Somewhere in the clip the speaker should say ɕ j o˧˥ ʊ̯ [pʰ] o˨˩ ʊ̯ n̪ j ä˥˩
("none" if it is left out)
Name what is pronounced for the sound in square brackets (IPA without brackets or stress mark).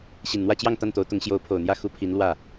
pʰ